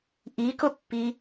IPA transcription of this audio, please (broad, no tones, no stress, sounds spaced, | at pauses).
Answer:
ʔ i k ʊ pː i